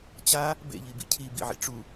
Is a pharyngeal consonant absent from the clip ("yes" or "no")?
no